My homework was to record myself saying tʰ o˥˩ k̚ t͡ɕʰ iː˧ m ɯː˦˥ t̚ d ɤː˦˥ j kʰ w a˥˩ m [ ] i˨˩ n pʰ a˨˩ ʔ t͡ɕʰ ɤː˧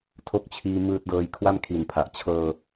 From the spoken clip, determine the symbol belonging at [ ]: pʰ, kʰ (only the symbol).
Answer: kʰ